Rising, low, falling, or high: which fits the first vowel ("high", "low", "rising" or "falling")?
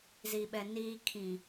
low